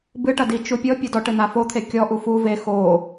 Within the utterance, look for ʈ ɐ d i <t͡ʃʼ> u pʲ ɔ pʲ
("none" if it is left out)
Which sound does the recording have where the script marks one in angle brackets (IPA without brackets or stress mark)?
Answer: t͡ʃ